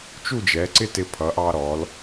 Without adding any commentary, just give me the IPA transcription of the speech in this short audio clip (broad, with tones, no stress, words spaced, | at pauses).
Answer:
t͡ʃu˥˧d͡ʒɛ˩˧ǀɪ˥ tɪ˧pʰʌ˩˧ʔɑ˧ɾɔ˩˧l